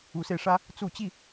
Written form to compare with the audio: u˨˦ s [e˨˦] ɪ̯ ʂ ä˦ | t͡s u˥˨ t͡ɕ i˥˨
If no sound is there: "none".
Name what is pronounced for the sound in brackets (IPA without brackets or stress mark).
e˧